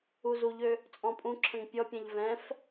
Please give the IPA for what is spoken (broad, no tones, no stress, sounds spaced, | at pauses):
u z u ʎ ø | t͡sʼ ɔ̃ pʼ ũ ǁʰ ə̃ ŋ pʲ ɔ pʲ ɛ̃ ʎ v ɛ̃ f